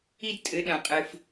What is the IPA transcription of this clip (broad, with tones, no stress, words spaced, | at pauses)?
i˥dtʼɘ˧˥ ɗɐ̃˧qʼɨ˧f